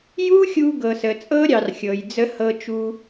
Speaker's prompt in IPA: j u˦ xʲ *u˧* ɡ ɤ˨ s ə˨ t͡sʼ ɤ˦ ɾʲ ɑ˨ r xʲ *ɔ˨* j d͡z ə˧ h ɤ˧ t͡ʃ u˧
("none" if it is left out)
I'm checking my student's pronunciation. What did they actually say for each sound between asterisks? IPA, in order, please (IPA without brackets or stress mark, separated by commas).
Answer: u˧, ɤ˨